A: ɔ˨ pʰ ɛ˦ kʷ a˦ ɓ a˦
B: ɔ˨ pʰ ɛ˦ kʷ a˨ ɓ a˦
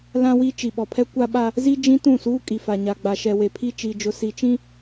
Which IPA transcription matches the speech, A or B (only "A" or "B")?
A